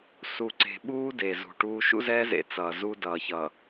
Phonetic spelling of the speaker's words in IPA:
s u˨ ǀ e̤˨ ɓ uː˦ d e˨ z ṳ˨ ʈ uː˦ ʃ ṵ˦ z ɛː˦ z ḛ˨ t͡s ʌː˨ z u˦ d ʌː˨ ç ʌ˨

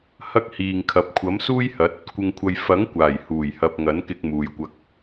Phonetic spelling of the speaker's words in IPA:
h ɐ˥ k̚ h iː˨ ŋ kʰ ɐ˨˥ p̚ kʷʰ ɐ˨˥ m s uː˥ j h ɐ˨˥ t̚ | kʷ ɪ˧ ŋ kʷʰ ɐ˧ j f ɐ˨˥ ŋ kʷ aː˨˩ j h uː˨˩ j h ɐ˨ p̚ ŋ ɐ˨˥ n k ɪ˧ k̚ m uː˨ j kʷ ɐ˧ k̚

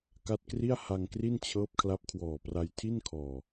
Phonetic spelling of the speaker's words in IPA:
k a˦˥ t̚ k r i˥˩ a̯ h a˧ ŋ k r i˥˩ n t͡ɕʰ ɤː˦˥ p̚ kʰ l a˦˥ p̚ kʰ w ɔː˨˩ p r a˧ j tʰ i˥˩ n kʰ ɔː˨˩

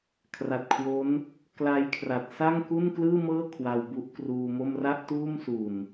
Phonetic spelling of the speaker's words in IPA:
kʰ r a˨˩ t̚ kʰ w o˦˥ n | k l a˧ j kʰ r a˨˩ t̚ s a˥˩ ŋ k u˥˩ n k l ɯː˥˩ m ɤː˥˩ kʰ w a˧ w b u˦˥ ʔ k r uː˧ m o˥˩ m r a˥˩ ʔ t uː˥˩ m s u˨˩ n

